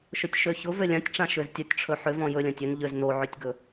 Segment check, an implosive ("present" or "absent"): absent